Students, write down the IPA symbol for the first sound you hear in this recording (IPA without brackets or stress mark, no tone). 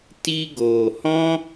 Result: t